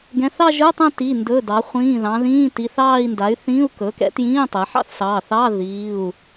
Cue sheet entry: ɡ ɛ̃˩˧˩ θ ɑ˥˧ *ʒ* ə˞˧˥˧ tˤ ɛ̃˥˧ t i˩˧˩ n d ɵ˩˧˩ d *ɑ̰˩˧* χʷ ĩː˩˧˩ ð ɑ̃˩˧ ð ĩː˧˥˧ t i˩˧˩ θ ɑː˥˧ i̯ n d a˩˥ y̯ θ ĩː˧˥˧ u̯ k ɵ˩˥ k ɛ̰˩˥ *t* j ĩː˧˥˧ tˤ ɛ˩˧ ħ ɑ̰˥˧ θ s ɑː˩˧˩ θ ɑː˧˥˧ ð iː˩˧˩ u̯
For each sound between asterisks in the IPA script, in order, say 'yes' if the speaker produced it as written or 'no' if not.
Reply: yes, no, yes

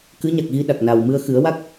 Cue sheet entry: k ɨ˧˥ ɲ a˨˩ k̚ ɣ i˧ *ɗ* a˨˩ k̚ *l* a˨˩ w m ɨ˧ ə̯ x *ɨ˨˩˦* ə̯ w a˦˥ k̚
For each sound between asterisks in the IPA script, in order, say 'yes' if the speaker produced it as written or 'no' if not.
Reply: yes, no, yes

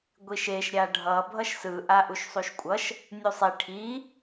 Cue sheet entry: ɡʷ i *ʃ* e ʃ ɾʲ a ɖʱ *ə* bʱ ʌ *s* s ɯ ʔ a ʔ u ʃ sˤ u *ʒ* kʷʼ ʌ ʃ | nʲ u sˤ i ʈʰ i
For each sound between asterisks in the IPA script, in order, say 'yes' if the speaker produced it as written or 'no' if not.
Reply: yes, no, no, no

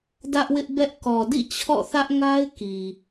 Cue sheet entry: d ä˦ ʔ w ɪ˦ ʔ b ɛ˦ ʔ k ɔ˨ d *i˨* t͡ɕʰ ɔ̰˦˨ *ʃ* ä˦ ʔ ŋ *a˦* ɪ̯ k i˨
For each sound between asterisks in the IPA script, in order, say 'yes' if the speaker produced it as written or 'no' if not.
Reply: no, no, yes

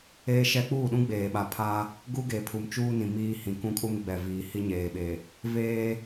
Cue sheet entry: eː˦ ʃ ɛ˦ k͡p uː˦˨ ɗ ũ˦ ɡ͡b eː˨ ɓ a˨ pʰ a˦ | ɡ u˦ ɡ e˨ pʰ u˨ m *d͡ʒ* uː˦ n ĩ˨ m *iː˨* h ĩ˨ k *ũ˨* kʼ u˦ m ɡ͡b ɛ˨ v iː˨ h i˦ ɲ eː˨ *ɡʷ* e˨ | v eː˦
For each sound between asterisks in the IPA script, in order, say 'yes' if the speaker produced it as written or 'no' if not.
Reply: no, no, no, no

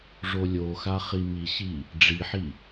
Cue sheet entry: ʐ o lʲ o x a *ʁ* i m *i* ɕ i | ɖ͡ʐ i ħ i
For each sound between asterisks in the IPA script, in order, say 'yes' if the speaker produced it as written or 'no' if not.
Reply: no, yes

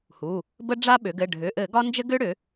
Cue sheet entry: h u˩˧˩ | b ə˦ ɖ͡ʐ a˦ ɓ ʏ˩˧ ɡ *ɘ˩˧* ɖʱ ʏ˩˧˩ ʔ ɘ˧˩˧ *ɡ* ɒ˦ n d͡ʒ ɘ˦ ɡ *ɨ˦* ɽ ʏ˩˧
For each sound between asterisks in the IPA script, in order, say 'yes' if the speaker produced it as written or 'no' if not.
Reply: no, yes, no

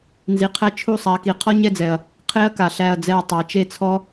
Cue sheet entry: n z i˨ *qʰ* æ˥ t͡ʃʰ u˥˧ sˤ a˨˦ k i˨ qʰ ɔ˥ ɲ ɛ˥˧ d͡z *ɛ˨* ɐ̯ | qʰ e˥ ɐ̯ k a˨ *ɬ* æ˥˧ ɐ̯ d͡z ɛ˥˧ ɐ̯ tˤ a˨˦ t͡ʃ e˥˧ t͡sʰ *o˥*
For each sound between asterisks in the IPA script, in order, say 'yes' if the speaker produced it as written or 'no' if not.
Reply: yes, yes, yes, no

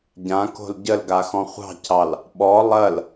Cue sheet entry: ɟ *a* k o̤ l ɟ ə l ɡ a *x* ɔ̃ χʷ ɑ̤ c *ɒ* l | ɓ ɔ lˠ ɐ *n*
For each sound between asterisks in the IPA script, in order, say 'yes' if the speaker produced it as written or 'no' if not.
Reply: no, yes, no, no

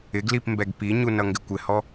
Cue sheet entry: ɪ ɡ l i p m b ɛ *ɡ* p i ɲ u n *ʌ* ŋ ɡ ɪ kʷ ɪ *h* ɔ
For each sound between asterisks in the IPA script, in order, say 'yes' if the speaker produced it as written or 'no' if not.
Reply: yes, yes, yes

